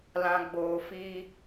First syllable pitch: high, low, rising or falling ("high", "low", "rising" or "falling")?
low